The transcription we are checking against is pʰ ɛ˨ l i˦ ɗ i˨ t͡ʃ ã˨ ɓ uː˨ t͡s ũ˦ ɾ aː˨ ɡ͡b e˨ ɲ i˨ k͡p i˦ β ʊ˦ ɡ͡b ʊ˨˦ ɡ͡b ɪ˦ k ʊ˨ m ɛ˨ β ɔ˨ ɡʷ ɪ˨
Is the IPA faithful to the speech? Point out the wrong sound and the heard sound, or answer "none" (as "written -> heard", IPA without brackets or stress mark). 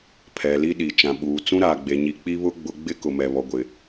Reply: none